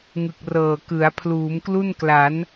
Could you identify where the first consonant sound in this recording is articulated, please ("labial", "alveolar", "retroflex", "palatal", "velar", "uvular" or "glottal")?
velar